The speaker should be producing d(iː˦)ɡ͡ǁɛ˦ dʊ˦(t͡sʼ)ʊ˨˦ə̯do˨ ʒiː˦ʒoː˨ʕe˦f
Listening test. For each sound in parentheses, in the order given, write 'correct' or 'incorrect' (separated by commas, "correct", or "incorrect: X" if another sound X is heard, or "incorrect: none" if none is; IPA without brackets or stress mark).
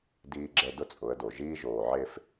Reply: correct, correct